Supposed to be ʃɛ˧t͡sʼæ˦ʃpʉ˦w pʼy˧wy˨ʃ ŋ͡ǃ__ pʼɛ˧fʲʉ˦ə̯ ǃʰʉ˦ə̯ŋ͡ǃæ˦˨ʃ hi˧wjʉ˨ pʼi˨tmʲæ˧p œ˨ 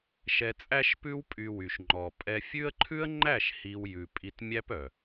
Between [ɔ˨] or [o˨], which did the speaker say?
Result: ɔ˨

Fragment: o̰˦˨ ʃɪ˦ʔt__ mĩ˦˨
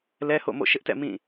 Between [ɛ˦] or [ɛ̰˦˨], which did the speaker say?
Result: ɛ̰˦˨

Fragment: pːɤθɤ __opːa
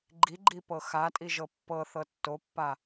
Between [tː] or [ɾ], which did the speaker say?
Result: tː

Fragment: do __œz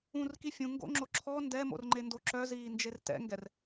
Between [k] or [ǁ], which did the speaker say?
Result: ǁ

